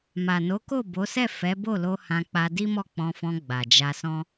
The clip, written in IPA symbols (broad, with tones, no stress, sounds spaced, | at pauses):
m a˨ n o˨˦ k o˦˨ b o˨˦ s ɛ˦˨ f ɛ˨˦ b o˦˨ l o˧ h ã˧ k͡p a˧ d i˦ m ɔ˦˨ k͡p ɔ̃˧ f ɔ̃˧ ɡ͡b a˨ d͡ʒ a˧ s ɔ̃˦